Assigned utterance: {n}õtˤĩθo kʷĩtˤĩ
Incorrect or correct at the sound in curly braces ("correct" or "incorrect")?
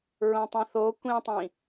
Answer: incorrect